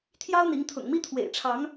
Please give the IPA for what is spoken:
t̪ʰ j ɑ˦ ʊ̯ n̪ i˨˦ ŋ t̪ʰ ʊ̰˨˩ ŋ m i˦ t̪ʰ w ḛ˨˩ ɪ̯ ʈ͡ʂʰ ɑ˨˦ ŋ

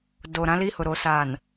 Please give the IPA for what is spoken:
d o˨ ɾ ã˦ l i˦ h ʊ˨ ɾ o˨ s aː˨ n

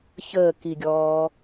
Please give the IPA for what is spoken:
ç əː k i ɡʲ ɔː

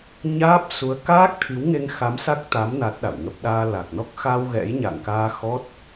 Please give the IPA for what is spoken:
ɲ aː˦˥ p̚ s u˨˦ ə̯ k aː˦˥ k̚ t̪ʰ i˨˦ w ŋ e˧ ŋ x a˨˦ m s a˦˥ k̚ t̪ a˨˦ m n a˦˥ t̚ ɗ a̰˧˨ w ŋ ə˦˥ p̚ ɗ aː˧ l a˨˩ k̚ n ɔ˦˥ k̚ x a˧ w ɣ ɛ̰˧˥ j ɲ a̰˧˨ ŋ k aː˧ x ɔ˦˥ t̚

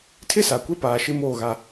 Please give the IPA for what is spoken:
tʰ ɪ˦ s a˨ kʷ e˦ p aː˨ ʃ ɪ˦ m oː˦˨ ɣ a˦

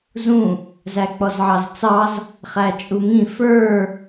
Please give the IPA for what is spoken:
z ũ | z æ k͡p ɔ z ʕ ɑ z t͡s ɑ z | χ æ t͡ʃʼ u ŋ ĩ f ə˞

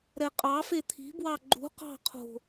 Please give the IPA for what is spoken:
ɾ ɛ qʼ ɑ f e t̪ʰ i̤ b w ɑ ɡ͡ǃ ṳ q ɑ̤ qʰ o̤

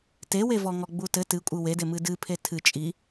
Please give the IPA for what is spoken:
t e w e v ɔ ŋ ɔ ɡ͡b u t ɘ t ɨ kʷʼ ɨ w e d e m ɨ d ɨ pʰ e tʰ ɨ t͡ʃʼ i

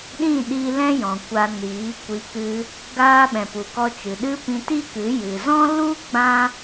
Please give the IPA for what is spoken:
ɗ ĩ˦˨ ɗ i˧ l ɛ̃˦ j ɔ̃˨ kʷ a˧ n iː˨˦ kʷ i˧ k ɨ˦ | ɡ aː˧ ɓ ɛ̃˨ p u˨ k ɔ˧ t͡ʃ ɨ˨ ɗ ɨ˦ p ĩ˧ t i˦ k ɨ˨˦ j ɨ˨ z ɔ̃˦ l u˦ ɡ͡b ã˦

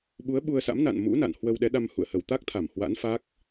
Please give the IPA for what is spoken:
ɓ u˨˦ ə̯ ɓ u˧ ə̯ s a̰˧˥ m n a̰˧˨ n m ṵ˧˥ n a̰˧˨ n h w ə˧ w ɗ ɛ˨˦ ɗ a˧ m h ṵ˧˨ ə̯ h ə˧˩ w t̪ a˦˥ k̚ t̪ʰ a˧˩ m h w a̰˧˥ n f a˦˥ k̚

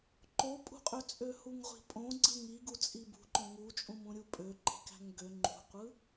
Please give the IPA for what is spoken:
ǃ o pʼ ṳ qʼ ø t͡sʼ ø h u ŋ ʁʷ i̤ pʼ õ ɡ͡ǀ ɯ ŋ i ɡ u t͡sʼ i b ṳ ǃ õ ŋ u t͡ʃʼ ũ m ũ ɾʲ u pʼ ø ǃ i̤ k æ̤ ŋ ɡ ø ŋ͡ǃ ṳ qʷ ɯ

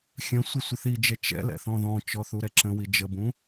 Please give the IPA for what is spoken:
xʲ ə̃ sʷ ə sʷ ə θ i d͡ʒ ɛ t͡ʃ ɛ̰ l ɛ̰ θ ɔ̃ ð ɔ̃ t͡ʃ ɔ θ u ɾ ɛ ǁ ə̃ w i d͡ʒ ə b ũ

